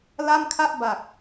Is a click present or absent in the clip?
absent